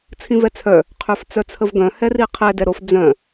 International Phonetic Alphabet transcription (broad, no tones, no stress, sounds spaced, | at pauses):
t͡sʰ ĩ v ɛ t͡sʰ œ | qʰ ø f t͡s œ t͡sʰ ə v ɡ œ̃ h ɛ r i qʰ ɛ d ɛ ɾ o f d͡z œ̃